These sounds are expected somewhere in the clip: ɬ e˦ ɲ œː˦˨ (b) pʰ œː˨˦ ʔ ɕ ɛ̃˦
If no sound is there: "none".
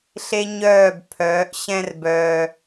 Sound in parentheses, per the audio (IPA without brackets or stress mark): b